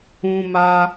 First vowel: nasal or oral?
nasal